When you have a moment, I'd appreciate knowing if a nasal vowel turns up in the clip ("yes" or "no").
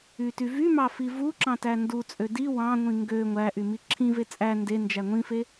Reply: yes